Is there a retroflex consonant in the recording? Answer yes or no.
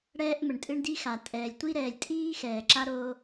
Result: yes